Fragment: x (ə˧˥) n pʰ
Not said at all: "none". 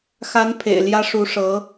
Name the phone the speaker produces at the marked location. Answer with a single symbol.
a˧˥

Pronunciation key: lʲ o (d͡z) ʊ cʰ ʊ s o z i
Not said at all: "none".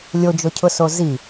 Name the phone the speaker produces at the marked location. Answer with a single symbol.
d͡ʒ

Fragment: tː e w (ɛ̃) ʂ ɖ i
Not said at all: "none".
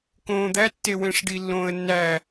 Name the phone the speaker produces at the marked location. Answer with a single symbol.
ẽ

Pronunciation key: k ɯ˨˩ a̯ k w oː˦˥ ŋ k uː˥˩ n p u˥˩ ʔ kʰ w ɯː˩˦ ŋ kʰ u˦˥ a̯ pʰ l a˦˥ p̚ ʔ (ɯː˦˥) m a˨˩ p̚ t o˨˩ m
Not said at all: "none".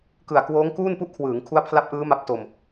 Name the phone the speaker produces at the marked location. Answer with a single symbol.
ɯː˦˥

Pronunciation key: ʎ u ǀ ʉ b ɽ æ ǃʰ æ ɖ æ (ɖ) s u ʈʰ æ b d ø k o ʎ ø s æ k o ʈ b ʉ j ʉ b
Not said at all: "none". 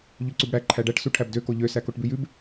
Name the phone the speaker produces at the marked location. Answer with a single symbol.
ʈ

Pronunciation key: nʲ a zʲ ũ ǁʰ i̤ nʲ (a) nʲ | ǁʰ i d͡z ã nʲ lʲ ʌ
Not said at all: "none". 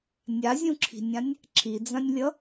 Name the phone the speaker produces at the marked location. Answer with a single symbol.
ã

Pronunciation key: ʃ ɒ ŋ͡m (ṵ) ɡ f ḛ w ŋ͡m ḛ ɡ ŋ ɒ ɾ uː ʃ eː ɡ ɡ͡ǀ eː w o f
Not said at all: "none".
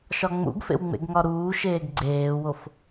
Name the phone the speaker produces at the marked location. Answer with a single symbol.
ṵ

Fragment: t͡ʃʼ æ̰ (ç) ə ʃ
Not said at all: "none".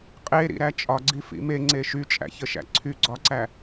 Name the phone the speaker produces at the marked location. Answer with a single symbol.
ç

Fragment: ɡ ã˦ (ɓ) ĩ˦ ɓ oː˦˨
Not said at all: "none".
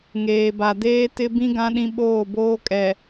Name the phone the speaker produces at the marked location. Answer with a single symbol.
ɗ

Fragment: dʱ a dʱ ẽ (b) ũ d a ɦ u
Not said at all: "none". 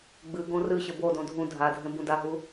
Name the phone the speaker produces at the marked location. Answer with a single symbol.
b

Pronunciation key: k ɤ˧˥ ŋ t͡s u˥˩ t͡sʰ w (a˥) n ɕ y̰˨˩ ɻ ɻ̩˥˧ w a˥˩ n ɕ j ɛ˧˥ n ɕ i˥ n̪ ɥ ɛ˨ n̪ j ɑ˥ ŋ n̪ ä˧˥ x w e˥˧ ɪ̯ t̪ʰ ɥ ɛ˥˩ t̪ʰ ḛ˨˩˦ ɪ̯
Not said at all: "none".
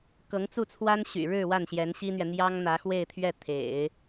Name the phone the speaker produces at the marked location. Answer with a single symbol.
a˥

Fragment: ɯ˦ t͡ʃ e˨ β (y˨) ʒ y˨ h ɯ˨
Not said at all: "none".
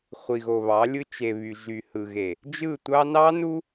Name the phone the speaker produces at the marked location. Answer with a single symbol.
y˨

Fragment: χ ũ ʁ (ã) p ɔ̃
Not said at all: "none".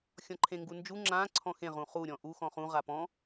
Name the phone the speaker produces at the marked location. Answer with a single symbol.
a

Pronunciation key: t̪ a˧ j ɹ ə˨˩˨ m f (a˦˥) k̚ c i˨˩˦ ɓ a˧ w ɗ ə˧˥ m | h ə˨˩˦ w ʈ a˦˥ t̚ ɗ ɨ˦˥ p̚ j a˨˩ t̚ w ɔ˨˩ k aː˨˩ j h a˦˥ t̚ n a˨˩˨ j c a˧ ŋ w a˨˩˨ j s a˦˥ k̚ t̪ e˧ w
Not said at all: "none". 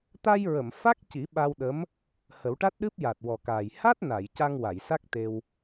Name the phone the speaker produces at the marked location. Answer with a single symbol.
a˦˥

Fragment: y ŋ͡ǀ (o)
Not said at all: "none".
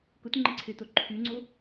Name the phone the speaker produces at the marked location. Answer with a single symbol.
o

